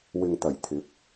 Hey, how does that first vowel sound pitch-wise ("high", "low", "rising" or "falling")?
low